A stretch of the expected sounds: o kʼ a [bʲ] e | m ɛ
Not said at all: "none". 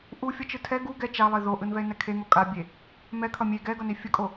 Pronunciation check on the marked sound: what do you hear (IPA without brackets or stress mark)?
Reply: bʲ